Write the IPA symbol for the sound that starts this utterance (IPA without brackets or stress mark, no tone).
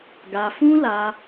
ɡ